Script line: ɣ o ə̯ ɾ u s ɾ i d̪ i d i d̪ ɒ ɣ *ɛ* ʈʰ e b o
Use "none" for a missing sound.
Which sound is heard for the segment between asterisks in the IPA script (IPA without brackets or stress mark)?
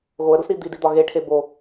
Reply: e